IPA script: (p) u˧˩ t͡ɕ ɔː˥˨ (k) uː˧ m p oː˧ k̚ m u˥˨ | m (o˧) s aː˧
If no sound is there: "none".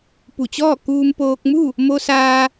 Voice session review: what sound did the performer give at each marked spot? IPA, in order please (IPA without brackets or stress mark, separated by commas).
p, k, o˧